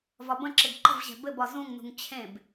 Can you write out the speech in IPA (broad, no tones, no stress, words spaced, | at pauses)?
vɒbə̃ǁɘɡ ǃə̤vʑɛ̤ bɘbɒ zũŋnṳŋ t͡ɕʰẽb